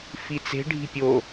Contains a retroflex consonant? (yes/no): yes